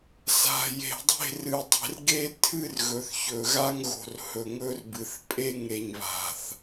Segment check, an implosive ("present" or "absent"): absent